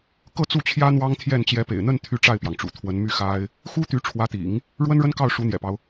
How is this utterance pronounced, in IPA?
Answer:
kɤ˥˧t͡su˥˩t͡ɕʰjä˥ n̪wɑ˥ŋt̪ʰjɛ˥˩n t͡ɕjɛ˧˥pḛ˨˩ɪ̯n̪ə˥˧n t̪ʰy˥˧ʈ͡ʂa˥˩ɪ̯pjɑ˩ŋʈ͡ʂṵ˨˩ t̪ʰwə˧˥nmy˥˩ xa˥ɪ̯ | xu˥t̪y˧˥ ʈ͡ʂʰwä˧˥t̪ḭ˨˩˦ŋ | ɻwə˥nɻə˥n kɑ˥˩ʊ̯ʂu˧˥n̪jɛ̰˨˩pɑ˦ʊ̯

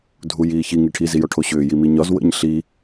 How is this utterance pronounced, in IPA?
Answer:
dʱujiːçi ŋiʈʰi zijɔʈʰoɕʏː jimiɲɒz wə̰ɲ ɬi

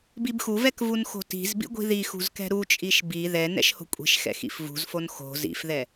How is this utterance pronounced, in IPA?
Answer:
bibxuvɛk vunxo̤ti̤zbḭ ɡʷi̤ðixṳz kɛ̤ɾut͡ʃʼiʃ bi ðɛ nɛ̰ʃho̤kʷʼi̤ʃxɛ̰ xḭfvṳzfon xo̤ zḭfðɛ

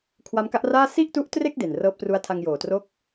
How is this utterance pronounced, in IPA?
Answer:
kʰwa˦˥mka˦˥ʔraː˥˩ si˥˩ʔtu˦˥ʔtre˥˩k̚ de˨˩nrɤː˦˥p̚tru˦˥a̯ tʰa˧ŋjoː˨˩tro˥˩k̚

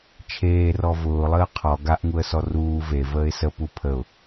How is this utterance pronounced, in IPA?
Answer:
t͡ʃʰeːrɔ vʊːlˠəː qʰɔ ɡaʔŋuə̯sɔ ruː ve vəːɪ̯sə pupʰəʊ̯

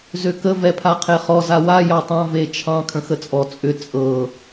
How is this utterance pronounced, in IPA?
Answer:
zøkə vɛpʰaqʰeχɔ zawa jɑtˤɑ̃ vet͡ʃʰɑ̃ kʰə̃xət͡sʼɔ t͡sʼʏ t͡sʼɤ

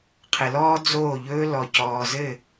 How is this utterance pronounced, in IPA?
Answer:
qʰɘ˨lɔː˦d͡zoː˦˨ʎɵː˦ lɔ˨cɔː˨zɘ˦˨

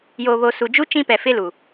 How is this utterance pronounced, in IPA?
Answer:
joː˨βo˨su˨d͡ʒu˦ t͡ʃĩ˦pɛ˨ fɪ˦lu˨

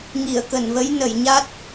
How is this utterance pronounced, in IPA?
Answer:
ŋi˧˩ə̯kə˧˩nvə˨˦j nə˧˩jɲa˦˥t̚

